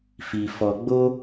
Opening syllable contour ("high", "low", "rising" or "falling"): low